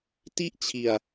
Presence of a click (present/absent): absent